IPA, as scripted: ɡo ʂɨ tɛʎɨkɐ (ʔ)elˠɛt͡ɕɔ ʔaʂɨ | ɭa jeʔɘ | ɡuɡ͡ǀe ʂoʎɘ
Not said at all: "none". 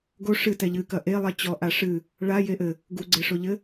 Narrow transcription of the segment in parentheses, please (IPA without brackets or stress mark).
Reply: ʔ